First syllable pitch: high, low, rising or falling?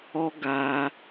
high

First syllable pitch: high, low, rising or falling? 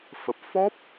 low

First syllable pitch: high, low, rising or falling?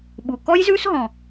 low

